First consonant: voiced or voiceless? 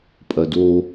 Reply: voiceless